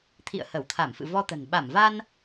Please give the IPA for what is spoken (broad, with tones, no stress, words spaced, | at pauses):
t̪ʰḭ˧˨ə̯hə˧˩wt̪ʰa˧˩mfɨ̰˧˨ vɔ˧t̪ə̤˨˩n ɓa˧˩mva˧n